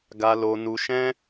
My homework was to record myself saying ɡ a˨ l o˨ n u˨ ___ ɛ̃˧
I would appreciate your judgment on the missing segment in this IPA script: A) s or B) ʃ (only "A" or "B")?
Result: B